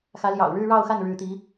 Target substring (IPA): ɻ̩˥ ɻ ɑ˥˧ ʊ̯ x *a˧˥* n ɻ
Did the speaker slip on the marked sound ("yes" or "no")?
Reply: yes